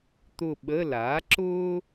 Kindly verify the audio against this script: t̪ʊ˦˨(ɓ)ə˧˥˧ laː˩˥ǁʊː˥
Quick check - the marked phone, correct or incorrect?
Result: correct